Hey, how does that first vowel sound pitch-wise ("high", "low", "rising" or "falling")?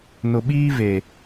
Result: low